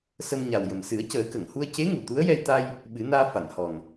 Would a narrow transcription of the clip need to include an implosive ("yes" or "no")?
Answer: yes